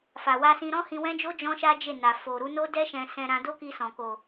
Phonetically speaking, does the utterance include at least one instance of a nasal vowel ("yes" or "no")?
yes